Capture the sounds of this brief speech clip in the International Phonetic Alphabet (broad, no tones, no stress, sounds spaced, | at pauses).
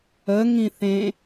ə ŋ ĩ θ ẽ